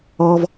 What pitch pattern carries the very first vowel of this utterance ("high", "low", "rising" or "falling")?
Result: low